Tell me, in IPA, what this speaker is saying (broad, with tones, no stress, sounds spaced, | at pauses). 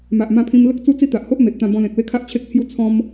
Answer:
m a˨ ʔ m ã˧ pʰ ĩ˧ m l ə˦ k̚ t͡s u˦ t͡s i˦ t̪ a˨ ʔ h o˦ ʔ m e˨ t̚ t̪ ã˧ b ɔ̃˧ l ẽ˨ k̚ w e˦ kʰ a˦ ʔ t͡ɕʰ e˦ k̚ t͡sʰ j u˦ t͡sʰ ɔ̃˧ m